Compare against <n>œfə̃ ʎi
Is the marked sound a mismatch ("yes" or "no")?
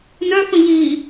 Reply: no